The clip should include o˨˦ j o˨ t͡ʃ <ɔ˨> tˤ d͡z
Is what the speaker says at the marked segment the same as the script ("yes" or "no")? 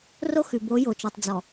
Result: yes